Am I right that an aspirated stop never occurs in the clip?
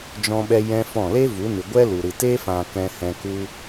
yes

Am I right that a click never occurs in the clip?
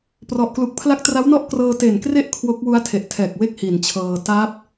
yes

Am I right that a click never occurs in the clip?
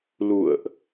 yes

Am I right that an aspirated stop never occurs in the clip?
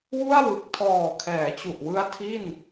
no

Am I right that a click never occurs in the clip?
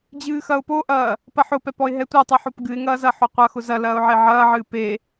yes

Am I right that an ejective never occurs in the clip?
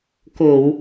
yes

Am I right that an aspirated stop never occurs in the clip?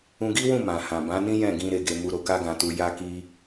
yes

